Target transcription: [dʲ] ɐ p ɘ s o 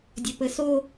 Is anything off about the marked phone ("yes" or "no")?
no